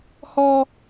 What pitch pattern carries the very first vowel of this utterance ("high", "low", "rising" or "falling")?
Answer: high